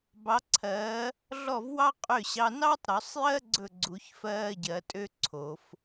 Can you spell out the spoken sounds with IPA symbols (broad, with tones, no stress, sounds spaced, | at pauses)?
b ɑ˨˥ ǀʰ ɜː˨˥ | ɮ ɔ˥˩ v w ɑ˥ qʼ ø˥˩ ɕ ɑ˧˥˧ n ɑ˥ tˤ ɾ ɵ˨˩˦ sˤ j ɜ˥ ɡ͡ǀ ɵ˥˩ ɡ͡ǀ u˨˩˦ ç f ɜː˧˥˧ ɟ ɜ˨˩˦ tʼ ø˥ ǀʰ o˨˩˦ f